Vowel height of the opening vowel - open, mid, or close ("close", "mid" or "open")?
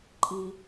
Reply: close